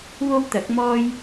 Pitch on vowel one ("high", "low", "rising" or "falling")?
high